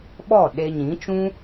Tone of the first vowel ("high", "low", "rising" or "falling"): falling